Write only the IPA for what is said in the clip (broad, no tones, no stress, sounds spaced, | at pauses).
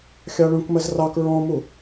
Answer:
xʲ ɑ ɭ ũ k m ɜ z r ɑ k ɹ ɔ̃ m u